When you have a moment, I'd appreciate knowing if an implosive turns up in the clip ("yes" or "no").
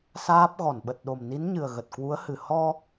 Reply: yes